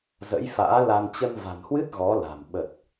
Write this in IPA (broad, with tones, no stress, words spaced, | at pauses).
zə̰˧˥jfa̰ː˧˥la˧n t͡ɕə˧nva̤˨˩nhwɨ˦˥t̚ ɣɔ˨˦la̤˨˩m ɓə˨˩t̚